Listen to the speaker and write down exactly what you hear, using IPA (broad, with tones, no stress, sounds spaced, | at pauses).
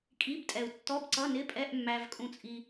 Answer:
kʼ i˧˥˧ b tʼ ɛ˨ u̯ tː ɔ˧˥˧ b ǀ ʌ˧˥˧ n ɪ˧˥˧ pʼ ɛ˧˥˧ ʔ mː æ˨ v kʼ ũ˨ t͡sʼ i˨